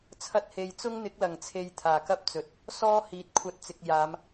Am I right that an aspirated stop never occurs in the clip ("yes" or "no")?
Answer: no